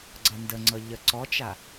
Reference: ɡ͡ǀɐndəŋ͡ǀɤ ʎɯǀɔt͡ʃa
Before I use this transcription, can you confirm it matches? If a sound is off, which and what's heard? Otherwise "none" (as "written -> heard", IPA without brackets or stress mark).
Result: ɯ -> ə